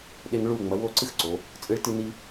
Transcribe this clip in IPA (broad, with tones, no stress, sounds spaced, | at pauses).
ɗ e˧ ŋ ɭ u˧˩ ŋ͡m ɐ˩˧ w o˥˧ ǀ ɨ˥ x ǀ o˩˧ | t͡sʼ ɨ˧ ɭ t ɨ˧ n i˧